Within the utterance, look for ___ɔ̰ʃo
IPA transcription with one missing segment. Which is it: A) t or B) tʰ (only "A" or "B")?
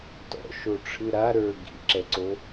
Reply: A